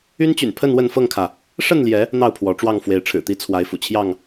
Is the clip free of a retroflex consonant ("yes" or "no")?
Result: no